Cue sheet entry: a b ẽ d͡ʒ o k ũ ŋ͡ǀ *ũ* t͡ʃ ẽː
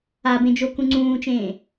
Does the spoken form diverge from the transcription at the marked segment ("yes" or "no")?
yes